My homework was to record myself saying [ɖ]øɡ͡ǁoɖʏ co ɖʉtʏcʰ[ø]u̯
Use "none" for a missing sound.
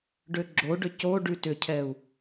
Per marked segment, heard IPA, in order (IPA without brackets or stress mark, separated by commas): ɖ, ɛ